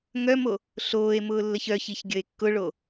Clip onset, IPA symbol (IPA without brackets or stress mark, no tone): ŋ